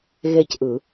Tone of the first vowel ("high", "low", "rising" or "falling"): high